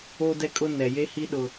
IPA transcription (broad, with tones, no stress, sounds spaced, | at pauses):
o˦ d ɛ˦ kʼ ʊ˦ n ɛ˨ j e˦ h i˦ ɗ ʊ˦